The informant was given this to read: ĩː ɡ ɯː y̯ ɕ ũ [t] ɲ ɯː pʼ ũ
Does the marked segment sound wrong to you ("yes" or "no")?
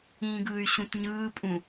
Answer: no